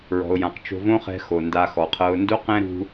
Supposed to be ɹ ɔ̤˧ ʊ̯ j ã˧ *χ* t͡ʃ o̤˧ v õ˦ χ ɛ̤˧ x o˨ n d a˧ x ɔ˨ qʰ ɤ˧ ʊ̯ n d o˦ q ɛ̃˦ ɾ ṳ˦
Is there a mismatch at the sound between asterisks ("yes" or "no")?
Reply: yes